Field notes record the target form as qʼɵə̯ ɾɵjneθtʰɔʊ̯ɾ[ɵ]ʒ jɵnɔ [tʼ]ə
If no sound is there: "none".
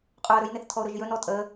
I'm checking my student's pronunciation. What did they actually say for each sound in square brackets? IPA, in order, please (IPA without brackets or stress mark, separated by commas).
ɵ, tʼ